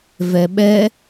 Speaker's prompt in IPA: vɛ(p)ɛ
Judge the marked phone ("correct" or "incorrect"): incorrect